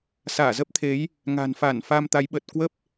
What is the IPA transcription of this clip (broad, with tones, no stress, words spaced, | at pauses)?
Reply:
saː˧˩zə˦˥p̚ t̪ʰe˨˦j | ŋa̤˨˩nfa˧˩n fa˧mt̪a˨˦jɓə˨˩t̚ kwə˦˥p̚